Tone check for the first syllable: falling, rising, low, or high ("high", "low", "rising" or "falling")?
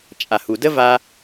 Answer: low